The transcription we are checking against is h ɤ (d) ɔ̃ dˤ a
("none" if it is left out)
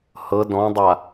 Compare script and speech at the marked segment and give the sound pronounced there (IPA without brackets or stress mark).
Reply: d